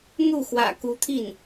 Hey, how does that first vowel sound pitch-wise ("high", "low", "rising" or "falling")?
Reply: falling